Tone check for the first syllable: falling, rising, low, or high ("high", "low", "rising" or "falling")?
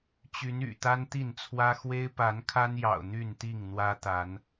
rising